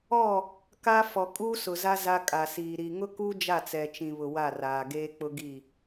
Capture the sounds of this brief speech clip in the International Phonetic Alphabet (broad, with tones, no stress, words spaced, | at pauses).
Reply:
ɔ˦˨ | ka˦ fɔ˨ kʼuː˦sʊ˨za˦ za˦kʼa˨siː˨ ɾi˨ŋʊ˦ku˦ d͡ʒa˦˨t͡sɛ˨t͡ʃĩ˨βʊ˨ wa˦˨raː˨ ɡeː˦k͡pʊ˦ɡi˦˨